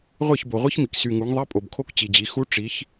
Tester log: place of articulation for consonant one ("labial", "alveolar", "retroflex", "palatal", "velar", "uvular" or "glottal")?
uvular